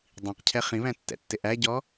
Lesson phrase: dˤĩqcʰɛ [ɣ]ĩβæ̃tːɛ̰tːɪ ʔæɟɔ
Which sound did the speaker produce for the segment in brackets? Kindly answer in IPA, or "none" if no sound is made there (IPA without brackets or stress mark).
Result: χ